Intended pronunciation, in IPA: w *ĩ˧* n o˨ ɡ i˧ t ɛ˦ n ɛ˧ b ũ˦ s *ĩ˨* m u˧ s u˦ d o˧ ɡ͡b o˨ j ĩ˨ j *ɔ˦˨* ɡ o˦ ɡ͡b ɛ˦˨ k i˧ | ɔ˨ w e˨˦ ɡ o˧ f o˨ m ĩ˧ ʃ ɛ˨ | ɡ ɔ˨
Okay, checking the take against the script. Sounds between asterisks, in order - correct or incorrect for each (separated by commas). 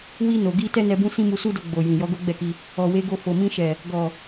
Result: incorrect, incorrect, incorrect